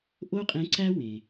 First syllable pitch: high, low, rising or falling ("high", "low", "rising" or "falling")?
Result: high